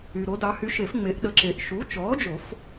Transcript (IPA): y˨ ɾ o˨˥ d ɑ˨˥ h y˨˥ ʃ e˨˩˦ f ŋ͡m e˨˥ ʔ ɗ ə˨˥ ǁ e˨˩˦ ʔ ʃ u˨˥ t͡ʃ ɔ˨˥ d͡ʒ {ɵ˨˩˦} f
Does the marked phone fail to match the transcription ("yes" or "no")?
yes